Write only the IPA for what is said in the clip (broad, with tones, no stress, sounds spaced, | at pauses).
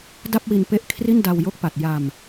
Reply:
d a˥˩ p̚ w i˧ n p e˦˥ ʔ kʰ r i˥˩ n d a˧ w j o˦˥ k̚ p a˨˩ t̚ j a˧ m